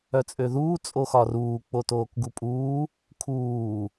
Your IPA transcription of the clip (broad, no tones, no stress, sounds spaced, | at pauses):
œ t͡sʼ ø ð uː t͡sʼ o x ɒ r uː k͡p o t oː k ɡ u pʼ uː | kʰ uː